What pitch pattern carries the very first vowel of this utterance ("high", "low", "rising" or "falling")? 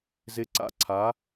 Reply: rising